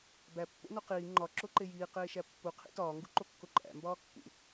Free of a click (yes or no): no